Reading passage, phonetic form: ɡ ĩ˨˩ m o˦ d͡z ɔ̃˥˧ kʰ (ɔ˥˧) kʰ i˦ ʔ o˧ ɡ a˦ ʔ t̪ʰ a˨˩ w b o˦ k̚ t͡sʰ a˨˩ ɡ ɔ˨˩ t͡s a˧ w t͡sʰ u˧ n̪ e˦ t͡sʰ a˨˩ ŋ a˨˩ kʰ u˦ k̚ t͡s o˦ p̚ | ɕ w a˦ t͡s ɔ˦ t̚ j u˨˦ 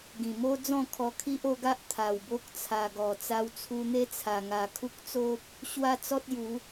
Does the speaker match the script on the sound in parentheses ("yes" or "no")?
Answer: no